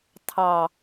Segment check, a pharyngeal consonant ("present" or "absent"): absent